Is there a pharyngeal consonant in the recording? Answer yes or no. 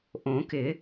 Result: no